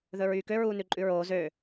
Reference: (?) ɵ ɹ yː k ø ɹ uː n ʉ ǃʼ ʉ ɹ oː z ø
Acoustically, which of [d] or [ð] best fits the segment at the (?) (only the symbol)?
ð